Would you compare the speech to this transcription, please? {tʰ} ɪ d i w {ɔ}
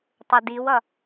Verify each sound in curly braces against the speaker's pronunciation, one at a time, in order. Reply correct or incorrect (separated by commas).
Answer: incorrect, incorrect